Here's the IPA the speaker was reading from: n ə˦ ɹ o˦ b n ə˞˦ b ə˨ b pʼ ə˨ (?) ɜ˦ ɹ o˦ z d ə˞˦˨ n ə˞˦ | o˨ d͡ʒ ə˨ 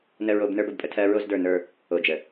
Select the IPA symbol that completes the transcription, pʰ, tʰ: tʰ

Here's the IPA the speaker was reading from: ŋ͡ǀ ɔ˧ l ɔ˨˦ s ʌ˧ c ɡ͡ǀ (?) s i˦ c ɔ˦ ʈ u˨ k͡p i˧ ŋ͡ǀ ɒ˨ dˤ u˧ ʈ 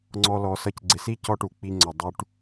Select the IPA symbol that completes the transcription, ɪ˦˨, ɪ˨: ɪ˨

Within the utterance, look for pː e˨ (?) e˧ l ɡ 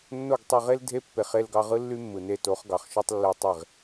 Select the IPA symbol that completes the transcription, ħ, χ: χ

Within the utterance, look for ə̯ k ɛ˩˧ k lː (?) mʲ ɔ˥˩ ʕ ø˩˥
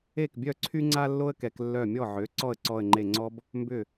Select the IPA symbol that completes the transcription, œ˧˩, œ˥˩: œ˧˩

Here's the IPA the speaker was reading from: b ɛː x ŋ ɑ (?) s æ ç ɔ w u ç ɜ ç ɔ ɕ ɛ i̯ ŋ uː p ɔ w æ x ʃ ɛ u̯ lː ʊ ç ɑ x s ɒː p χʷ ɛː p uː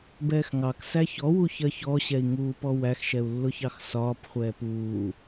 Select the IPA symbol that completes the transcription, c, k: k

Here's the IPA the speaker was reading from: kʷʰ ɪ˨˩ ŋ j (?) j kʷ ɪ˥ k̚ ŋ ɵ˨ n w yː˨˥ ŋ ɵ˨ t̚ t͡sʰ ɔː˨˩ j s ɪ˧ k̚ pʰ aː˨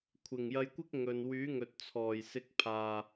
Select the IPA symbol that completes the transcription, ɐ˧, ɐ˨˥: ɐ˧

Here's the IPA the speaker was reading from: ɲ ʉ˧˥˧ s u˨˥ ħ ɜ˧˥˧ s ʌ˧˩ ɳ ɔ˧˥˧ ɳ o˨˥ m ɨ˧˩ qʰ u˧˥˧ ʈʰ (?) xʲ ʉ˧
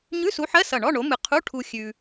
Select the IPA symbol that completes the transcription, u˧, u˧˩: u˧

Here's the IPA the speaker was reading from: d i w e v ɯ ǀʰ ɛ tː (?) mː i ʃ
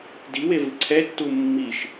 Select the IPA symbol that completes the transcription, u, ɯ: u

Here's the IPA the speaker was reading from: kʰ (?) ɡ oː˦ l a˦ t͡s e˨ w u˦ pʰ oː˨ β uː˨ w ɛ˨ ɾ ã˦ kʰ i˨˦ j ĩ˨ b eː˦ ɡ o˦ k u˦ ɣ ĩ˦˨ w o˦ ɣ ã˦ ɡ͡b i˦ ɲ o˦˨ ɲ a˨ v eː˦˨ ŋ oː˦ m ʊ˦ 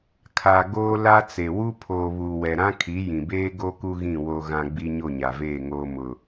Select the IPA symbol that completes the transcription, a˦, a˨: a˨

